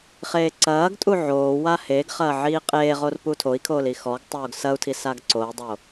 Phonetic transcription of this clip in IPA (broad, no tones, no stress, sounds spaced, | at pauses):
χ eː ǀ ɐː ɡ tʼ u ʕ oː w a h e ɡ χ ɐː ʕ iː qʼ eː ʁ o r p u tʰ o i̯ kʰ oː l i x ɔ ɡ tˤ oː ɡ s ɐ u̯ tʰ i s a ɡ ǀ o i̯ dˤ o